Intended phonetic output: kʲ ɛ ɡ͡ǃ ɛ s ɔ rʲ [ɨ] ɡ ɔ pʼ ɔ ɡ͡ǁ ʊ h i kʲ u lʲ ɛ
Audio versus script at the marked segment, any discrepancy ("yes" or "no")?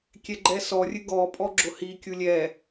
no